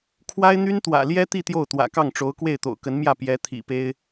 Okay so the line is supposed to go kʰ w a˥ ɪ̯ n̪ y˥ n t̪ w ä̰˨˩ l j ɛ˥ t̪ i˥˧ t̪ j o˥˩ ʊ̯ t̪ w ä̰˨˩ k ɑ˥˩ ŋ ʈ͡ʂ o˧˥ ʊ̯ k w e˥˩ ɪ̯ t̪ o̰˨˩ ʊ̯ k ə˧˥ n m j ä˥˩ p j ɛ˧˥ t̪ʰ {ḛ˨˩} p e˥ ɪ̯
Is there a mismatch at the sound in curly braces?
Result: yes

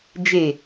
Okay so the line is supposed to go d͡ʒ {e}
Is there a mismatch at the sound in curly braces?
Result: no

